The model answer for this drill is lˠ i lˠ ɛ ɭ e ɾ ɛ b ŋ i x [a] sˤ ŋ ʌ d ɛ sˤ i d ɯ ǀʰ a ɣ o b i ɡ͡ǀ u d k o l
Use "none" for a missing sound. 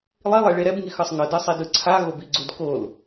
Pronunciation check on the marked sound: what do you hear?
ʌ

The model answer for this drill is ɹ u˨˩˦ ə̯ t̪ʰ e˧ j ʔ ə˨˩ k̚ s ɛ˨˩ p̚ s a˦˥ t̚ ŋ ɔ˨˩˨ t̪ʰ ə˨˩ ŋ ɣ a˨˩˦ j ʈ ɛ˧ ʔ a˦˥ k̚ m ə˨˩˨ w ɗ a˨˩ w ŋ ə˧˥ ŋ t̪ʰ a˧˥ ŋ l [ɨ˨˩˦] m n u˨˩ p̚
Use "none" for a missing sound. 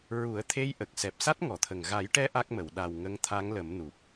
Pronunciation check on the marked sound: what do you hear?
ə˨˩˦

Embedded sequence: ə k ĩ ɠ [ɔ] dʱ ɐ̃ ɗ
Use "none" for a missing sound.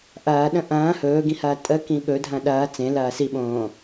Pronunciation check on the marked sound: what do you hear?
ɵ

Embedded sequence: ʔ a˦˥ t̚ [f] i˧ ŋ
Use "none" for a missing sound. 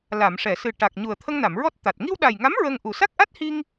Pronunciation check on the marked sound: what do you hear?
h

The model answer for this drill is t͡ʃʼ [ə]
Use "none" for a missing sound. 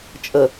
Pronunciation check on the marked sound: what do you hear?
ə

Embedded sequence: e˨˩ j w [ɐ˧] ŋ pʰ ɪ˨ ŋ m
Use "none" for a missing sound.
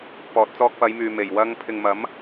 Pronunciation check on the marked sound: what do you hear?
ɐ˧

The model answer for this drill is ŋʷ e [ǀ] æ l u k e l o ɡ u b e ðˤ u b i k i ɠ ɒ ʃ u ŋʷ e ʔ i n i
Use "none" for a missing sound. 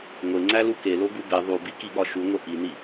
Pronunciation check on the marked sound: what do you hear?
ŋ͡ǀ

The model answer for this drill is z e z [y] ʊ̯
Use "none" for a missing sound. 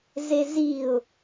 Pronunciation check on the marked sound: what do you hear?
i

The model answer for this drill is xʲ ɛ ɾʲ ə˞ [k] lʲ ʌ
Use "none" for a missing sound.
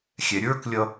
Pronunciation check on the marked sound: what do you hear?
k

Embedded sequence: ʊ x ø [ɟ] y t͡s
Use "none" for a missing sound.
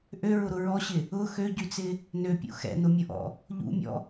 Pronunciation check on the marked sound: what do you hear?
ɟ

